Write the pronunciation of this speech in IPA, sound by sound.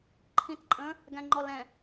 ǃʰ ĩ t ǃʼ ə̃ | ɡ æ̃ ŋ͡ǃ ɔ l ɛ̃

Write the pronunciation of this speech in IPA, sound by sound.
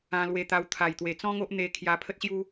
ã˧ l w e˧ t̪ a˧ w t̪ʰ a˨˩ j t̪ w e˨˩ t͡s ɔ̃˦ ŋ o˦ ʔ n̪ e˧ kʰ j a˧ pʰ ə˦ t̚ ɕ j u˦

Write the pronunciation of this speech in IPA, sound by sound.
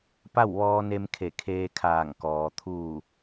p a˥˨ w ʋ ɔː˧ n e˧ m kʰ e˧˩ kʰ eː˧ kʰ aː˧˩ ŋ k ɔː˩ t̪ʰ uː˧˩

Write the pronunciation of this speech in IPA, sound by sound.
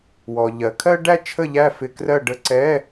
w ɔ˩ ʎ ɜ˩˧ kʰ ɜ˥ ɖ æ˥ t͡ʃʰ ə˥˨ ʎ æ˥˨ f ɪ˧˥˧ k r ɜ˥˨ ɖ ə˧˥˧ ǀ ɛ˧˥˧

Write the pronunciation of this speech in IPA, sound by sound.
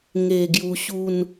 ŋ e˨˩ ɡ j u˧ ɕ u˥˧ n

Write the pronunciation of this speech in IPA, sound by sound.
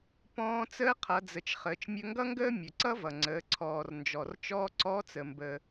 p ɔ̃ː˧ t͡s əː˧˥ qʰ ʌ˩˧ d͡z ə˩ t͡ʃ χ əː˩˧ t͡ʃ mʲ ɵ˧ ŋ ɡ ʌ˥ ŋ ɡ əː˥ mʲ ɵ˩ ǀ ʌ˥ v ʌ˩ ŋ͡ǀ əː˩˧ ǀʰ ɔː˩ r n d͡ʒ ɔ˩ r t͡ʃ ɔː˧ ǀ ɔ˧˥ t͡s ə˩ m b ə˩

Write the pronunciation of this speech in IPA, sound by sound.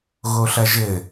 ɣ o ɬ ɐ ʒ ɘ

